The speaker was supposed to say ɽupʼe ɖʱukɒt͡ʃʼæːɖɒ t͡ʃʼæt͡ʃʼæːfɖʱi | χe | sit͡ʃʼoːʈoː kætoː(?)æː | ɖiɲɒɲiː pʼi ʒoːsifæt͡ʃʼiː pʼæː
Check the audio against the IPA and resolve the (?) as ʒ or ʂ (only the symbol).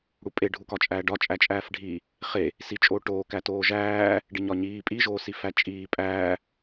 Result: ʒ